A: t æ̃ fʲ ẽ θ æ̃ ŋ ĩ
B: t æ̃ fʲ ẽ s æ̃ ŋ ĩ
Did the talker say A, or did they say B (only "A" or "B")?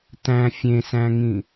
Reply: B